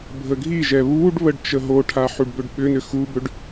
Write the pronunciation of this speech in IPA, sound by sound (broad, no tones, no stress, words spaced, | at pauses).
bʱəɡʱiʒɛ βuɖ βəɖt͡ʃəɦoʈʰa ħuɖbʏɖɓʏnʏ xubʏɖ